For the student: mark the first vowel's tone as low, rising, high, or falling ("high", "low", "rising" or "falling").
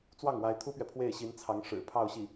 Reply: falling